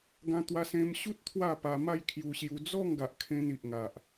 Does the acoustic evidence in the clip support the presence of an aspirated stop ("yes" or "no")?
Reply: yes